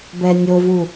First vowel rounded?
no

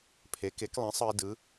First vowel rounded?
no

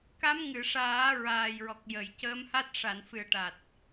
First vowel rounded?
no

